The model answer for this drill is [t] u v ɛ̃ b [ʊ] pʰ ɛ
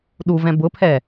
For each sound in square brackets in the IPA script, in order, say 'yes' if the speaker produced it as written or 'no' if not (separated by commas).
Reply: no, yes